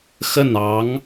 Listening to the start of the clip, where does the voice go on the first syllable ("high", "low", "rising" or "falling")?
falling